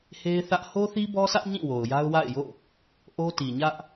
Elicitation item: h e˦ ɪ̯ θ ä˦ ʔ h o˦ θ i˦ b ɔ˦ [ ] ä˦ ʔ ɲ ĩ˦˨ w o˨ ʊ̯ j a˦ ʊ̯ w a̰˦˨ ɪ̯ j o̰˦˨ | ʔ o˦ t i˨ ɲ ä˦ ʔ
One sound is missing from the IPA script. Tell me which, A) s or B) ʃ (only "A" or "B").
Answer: A